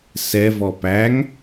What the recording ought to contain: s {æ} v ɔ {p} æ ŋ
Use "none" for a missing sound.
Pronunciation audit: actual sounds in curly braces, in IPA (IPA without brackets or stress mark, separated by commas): ɛ, p